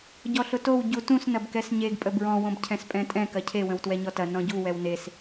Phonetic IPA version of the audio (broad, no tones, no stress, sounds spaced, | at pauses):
ɟ ɔ ɬ ʊ t o w ɟ u t ũ s n ɐ b k ɛ s ɲ e ɡ pʼ ə b ɹ ɔ̃ w õ b cʰ ɛ̃ s pʼ ɛ̃ tʼ ɛ̃ k ɐ cʰ e w ə̃ w t w ɛ ɲ ɔ t ɐ n ɔ̃ ɟ u w ɛ w n e s